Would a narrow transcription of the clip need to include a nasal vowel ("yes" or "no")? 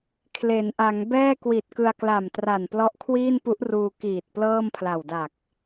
no